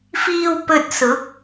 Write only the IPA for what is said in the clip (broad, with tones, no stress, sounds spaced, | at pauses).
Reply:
f iː˧ w p ɵ˧ t̚ s ʊ˨˥ k̚